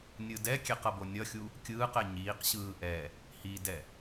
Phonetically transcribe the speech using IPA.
nʲ ɯ d ɛ kʲ ɛ q ʌ b o nʲ ʌ xʲ u | kʲ ɯː q ɛ ɲ iː q ɕ ɯː ʔ ɛ | h i d ɛ

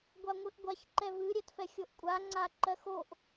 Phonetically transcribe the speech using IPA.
ɡʷ a ŋʷ ɨ ʔ ɡʷ a ç ǃ ɛ v ɨ ɾʲ ɛ t f ɛ xʲ o ʔ kʷʼ a ŋ͡ǀ a ǃ ɜ x o ʔ

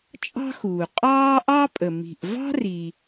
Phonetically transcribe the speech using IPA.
t͡ʃʼ ɑ̤˥ x uː˩ qʼ ɑː˥ ʔ ɑ˥ pʼ ə˩ m i̤˩ ʔ v ɑ̤˥ r i˩

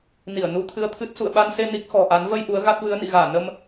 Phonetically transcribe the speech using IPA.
n i˧˩ ə̯ n u˧ t̪ʰ ɨ˧ ə̯ t̪ʰ ɨ˦˥ t̚ s ṵ˧˨ ə̯ ɓ a˧ n s e˧ n i˦˥ k̚ x ɔ̤˨˩ ʔ a˨˦ n v ə˧ j ʔ u˨˦ ə̯ ɣ a˦˥ t̚ v ɨ˨˦ ə̯ n ḭ˧˨ ɣ aː˧˩ n ə˧ m

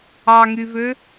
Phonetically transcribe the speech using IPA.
ɑ ŋ y v ø

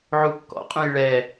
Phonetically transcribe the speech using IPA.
ʕ u kː ɔ̰ qʼ ũ j ɭ ɛ

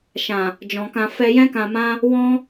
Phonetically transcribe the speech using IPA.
ʃ ã˨ | d͡ʒ ɔ̃˨ k ã˧ f ɛ˧ j ɛ̃˧ k ã˨ m ã˧ | w ɔ̃˦

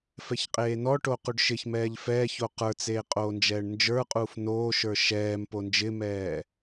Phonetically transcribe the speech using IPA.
f ɛ ç qʼ eː n ɔ ʈ o q u ɖ ʃ ɪ ç m ɛː ʎ f ɛː ç o q ə˞ t͡s eː qʼ oː n d͡ʒ ɛː ɳ n d͡ʒ ə˞ qʼ uː f n oː ʃ ə˞ ʃ ɛː m p o n d͡ʒ ɪ m ɛː

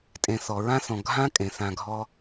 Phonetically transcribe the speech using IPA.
tʼ ẽ˨ θ ɔ˩ ɹ ã˥ θ ɔ̃˨ ɡʱ ã˥ kʼ ẽ˩ θ ã˨ ɡʱ ɔ˦

